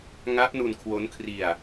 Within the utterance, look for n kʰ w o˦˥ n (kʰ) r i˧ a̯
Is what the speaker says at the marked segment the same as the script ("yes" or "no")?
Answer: yes